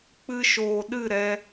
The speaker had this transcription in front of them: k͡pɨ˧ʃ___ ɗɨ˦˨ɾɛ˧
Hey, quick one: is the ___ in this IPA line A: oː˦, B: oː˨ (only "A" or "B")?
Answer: B